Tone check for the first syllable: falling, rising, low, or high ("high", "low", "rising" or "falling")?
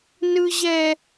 low